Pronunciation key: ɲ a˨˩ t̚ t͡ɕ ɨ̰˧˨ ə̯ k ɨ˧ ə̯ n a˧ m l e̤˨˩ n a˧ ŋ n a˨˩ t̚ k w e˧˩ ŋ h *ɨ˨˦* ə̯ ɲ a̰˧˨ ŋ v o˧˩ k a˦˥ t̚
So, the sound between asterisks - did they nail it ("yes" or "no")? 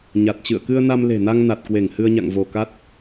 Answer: no